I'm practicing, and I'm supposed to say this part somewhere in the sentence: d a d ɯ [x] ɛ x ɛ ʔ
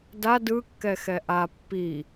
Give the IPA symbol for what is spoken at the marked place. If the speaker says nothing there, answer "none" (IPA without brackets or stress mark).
kː